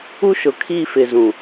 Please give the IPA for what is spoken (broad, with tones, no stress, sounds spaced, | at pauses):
u˦ ʃ ʊ˨ kʰ i˦˨ f ɪ˨ z ũ˨